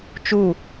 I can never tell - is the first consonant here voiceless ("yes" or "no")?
yes